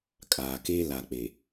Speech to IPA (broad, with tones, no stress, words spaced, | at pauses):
kʼaː˨ke˦ la˨k͡pe˨